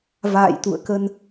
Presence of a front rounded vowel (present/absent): absent